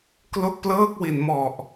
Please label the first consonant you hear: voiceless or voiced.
voiceless